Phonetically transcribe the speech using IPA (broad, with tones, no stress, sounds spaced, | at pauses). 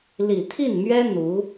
l i˨˩ t̪ʰ i˥˩ n m ɥ ɛ˥ n̪ u˧˥